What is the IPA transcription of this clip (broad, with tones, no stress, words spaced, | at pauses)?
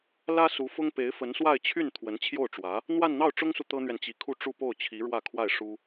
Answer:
lä˥su˧˥fʊ˥ŋ pe˧˥ɪ̯fə˧˥nswa˥˧ɪ̯t͡ɕʰy˥˩n t̪ʰwə˧˥nt͡ɕʰjo˥˩ʊ̯ʈ͡ʂwä˧˥ | n̪wa˥˧nn̪ɑ˥˩ʊ̯ʈ͡ʂʊ˥ŋsu˨ t̪ɤ˥n̪ɥɛ˨nt͡ɕi˧˥kʰu˥˧ ʈ͡ʂu˥˧po˥˩ʊ̯t͡ɕʰi˧˥ ɻwä˥˧kʰwa˥˩ɪ̯ʂu˥